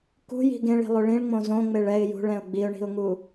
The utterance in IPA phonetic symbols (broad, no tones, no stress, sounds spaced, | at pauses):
k ṳ j i̤ ɡ ẽ ɭ i̤ lˠ o ɭ ĩ ɭ ŋ͡m õ z õ ŋ͡m e ɭ ɛ ɪ̯ j ṳ ɭ ɛ̃ ʊ̯ ɡ͡b i ʊ̯ ɳ i̤ ʊ̯ ŋ u